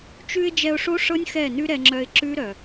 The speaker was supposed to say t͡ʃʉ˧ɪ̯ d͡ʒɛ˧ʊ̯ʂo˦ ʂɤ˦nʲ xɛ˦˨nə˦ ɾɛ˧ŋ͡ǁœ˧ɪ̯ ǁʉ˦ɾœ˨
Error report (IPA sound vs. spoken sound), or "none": ə˦ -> ʉ˦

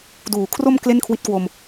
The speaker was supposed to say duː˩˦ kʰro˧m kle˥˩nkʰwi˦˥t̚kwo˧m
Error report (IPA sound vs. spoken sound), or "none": none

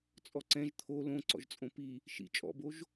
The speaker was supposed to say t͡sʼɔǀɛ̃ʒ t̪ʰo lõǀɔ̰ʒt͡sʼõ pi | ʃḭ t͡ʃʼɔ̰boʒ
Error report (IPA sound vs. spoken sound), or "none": none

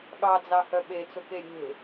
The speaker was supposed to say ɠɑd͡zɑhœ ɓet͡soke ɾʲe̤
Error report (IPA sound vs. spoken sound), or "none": none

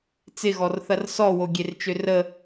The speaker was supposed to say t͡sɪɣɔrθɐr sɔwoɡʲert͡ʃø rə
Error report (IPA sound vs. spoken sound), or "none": none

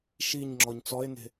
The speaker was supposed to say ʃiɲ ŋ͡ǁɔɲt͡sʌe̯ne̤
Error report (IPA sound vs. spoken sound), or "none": ʌ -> ɔ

